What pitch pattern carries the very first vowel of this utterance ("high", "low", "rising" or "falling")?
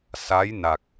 rising